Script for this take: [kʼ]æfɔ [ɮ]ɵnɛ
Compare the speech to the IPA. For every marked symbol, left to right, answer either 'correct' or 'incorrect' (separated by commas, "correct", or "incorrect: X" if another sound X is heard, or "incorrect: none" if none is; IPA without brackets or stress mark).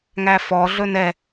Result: incorrect: ŋ, correct